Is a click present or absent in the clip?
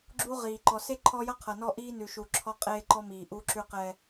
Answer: present